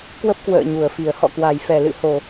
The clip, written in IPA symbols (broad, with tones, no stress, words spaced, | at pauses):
kwə˦˥p̚kwə̰ː˧˨ ɲu˨˩ə̯fi˨˩ə̯ hɔ̰˧˨kwa˨˩jfɛ˨˩ lɨ̰˧˨ho˨˩